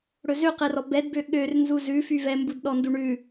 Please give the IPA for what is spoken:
ɽ ɵ z ø q ɛ r ɔ b ɛ d b ø ɠ ø r n z u z ʉ f y v ɛ m b u d ɗ ɔ n d u ɳ ʉ

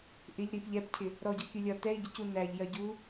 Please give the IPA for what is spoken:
ʔ ɪ ʎ ɾ i p ʎ ɛ p cʰ ɪ | ɾ ɔ ɟ ʌ kʲ u lʲ ɒ t ɛ i̯ ɟ ɪ c u n æ ʎ j ɜ ɟ u

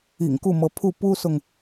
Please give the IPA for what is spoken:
ḭ˨˩ ŋ k u˥˩ m ɤ˧˥ pʰ u˥˩ p u˥ s ʊ˨ ŋ

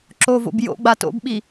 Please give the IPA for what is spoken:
ǁ o v o̰ b j o̰ ɡ͡b a t o̰ b ɓ i

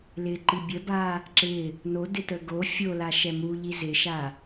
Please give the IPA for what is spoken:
l ɪ ǃ i bʲ ə b a | ǁ ɪ | n o d ɪ t ə ɡ o fʲ o l a ʃ ɛ m u ʎ i z ɪ ʃ a

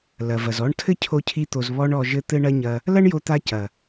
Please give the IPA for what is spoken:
l ɐ˨ v ɐ˨ z ɔ˦ ɳ tʰ ɘ˦ cʰ o˧ cʰ i˧ t̪ o˨ z β ɔ˧ ɳ ɔ˨ ʒ ɘ˧ t̪ ɘ˦ ɳ ɐ˦ ɲ ɐ˧ | l ɐ˦ ɳ j o˦ t̪ a˦ c ɐ˨

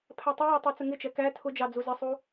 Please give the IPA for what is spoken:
pʰ æ tˤ ɪ j ɑ tˤ ɛ t͡s ə ŋ ɪ t͡ʃ ɛ k æ tʰ ʊ d͡ʒ ɑ d͡z u z ə sˤ u

